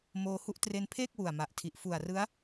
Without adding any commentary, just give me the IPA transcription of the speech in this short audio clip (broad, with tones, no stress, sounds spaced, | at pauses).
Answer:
m oː˧ h u˦˥ ʔ t r e˧ n pʰ eː˥˩ k̚ w u˨˩ a̯ m a˨˩ ʔ tʰ i˨˩ ʔ f u˨˩ a̯ r ɯ˦˥ a̯